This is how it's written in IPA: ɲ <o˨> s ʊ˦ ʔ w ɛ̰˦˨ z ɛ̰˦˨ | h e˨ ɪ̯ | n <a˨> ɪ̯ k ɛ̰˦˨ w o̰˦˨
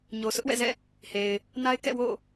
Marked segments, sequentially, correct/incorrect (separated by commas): correct, incorrect